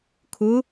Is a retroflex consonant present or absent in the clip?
absent